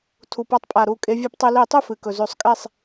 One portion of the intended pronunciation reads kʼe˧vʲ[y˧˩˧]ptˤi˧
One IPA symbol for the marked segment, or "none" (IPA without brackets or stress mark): ɨ˧˩˧